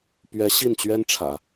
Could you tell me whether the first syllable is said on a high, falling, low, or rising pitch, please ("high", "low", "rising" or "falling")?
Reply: rising